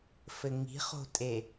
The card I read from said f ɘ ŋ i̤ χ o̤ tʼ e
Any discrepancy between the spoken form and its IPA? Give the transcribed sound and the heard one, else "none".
none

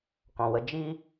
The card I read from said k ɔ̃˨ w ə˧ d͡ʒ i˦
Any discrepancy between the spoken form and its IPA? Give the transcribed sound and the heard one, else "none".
none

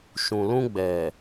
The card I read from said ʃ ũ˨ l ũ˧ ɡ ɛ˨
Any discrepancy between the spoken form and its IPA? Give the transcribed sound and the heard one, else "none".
ɡ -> ɡ͡b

